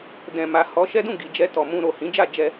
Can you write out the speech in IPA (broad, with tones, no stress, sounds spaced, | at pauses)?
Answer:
d ɛ̃˨ m a˨ h ɔ˨˦ ʃ ɛ˦ d ũ˦˨ ɡ i˨ d͡ʒ ɛ˧ t ɔ˨ m ũ˧ ɾ o˨ h ĩ˨˦ d͡ʒ a˦˨ d͡ʒ ɛ˧